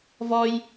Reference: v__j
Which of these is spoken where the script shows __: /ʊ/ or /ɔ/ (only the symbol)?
ɔ